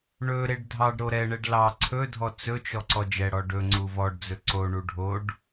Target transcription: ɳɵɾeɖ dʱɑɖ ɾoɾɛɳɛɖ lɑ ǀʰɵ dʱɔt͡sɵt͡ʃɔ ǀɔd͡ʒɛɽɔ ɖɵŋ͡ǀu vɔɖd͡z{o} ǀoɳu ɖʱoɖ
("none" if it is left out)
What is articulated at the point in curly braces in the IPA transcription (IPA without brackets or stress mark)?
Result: ɵ